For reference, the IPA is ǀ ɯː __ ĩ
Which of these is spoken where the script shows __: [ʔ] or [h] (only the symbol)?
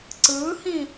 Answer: h